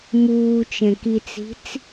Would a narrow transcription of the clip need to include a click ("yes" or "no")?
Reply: no